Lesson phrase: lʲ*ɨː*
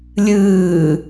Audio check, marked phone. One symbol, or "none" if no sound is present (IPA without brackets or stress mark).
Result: ɨː